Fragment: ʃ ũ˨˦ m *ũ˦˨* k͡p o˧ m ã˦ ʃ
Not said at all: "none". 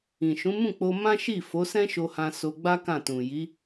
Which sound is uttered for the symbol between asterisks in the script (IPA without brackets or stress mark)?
ũ˦˨